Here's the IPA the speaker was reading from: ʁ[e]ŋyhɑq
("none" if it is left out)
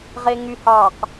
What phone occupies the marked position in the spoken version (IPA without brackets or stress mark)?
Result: e